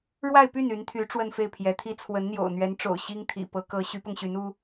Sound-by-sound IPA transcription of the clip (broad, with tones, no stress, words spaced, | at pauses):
ɻwa˥˧ɪ̯py˥˩n y˧˥nt̪ʰy˧˥ ʈ͡ʂwə˥˧nfe˥˩ɪ̯pʰjɛ˧˥t̪ʰi˥ t͡sʰwə˧˥nn̪jo̰˨˩ʊ̯ n̪ɥɛ˧˥nʈ͡ʂo̰˨˩ʊ̯ ɕi˥ŋt̪ʰḭ˨˩ pɤ˧˥kɤ˧˥ ɕy˧˥pɤ˧ŋɕy˧˥n u˥